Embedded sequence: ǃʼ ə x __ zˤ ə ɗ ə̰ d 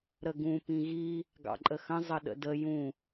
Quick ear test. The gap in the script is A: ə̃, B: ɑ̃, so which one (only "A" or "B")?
A